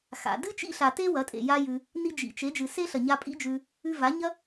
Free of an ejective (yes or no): no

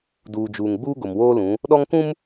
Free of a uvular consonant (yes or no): yes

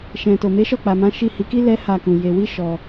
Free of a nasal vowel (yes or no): no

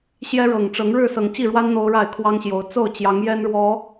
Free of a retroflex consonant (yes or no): no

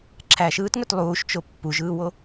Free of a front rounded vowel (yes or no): no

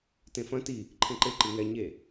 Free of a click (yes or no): no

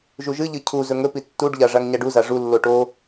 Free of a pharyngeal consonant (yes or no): yes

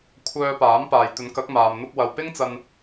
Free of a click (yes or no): yes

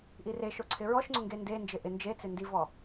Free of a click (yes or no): no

